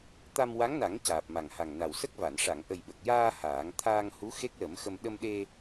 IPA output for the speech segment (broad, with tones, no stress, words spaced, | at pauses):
t̪a˧mwa˧˥ŋna˨˩˦ŋ caː˨˩p̚ma˨˩ŋha˨˩ŋna˨˩w sə˦˥k̚va˨˩˨n ʂa˨˩˨ŋʔə˨˩jɓə˨˩k̚jaː˧ haː˨˩˦ŋ t̪ʰaː˧ŋhu˧˥ xe˦˥k̚lə˨˩˦mxə˧m ɗə˧mɗe˧